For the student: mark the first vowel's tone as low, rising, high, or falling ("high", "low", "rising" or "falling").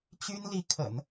high